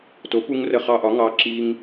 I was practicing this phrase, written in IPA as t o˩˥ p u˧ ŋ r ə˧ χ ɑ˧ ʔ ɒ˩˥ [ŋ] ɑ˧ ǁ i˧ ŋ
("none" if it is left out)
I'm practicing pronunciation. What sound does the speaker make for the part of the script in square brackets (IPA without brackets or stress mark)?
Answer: ŋ